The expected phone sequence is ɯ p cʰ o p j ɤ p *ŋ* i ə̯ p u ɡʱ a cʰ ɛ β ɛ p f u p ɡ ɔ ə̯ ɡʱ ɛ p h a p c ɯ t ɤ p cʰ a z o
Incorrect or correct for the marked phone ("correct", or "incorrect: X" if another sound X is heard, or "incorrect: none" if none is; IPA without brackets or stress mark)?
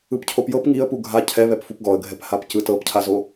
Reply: correct